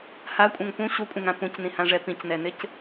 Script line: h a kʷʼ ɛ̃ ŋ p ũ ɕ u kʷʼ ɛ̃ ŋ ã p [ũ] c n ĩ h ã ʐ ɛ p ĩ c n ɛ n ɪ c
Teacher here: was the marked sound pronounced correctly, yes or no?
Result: yes